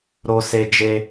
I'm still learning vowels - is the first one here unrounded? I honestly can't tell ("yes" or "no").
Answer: no